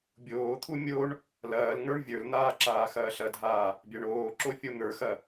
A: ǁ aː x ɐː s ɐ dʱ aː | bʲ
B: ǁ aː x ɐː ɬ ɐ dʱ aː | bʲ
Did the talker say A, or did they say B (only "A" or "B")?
B